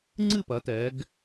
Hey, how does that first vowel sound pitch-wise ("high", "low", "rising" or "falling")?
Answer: falling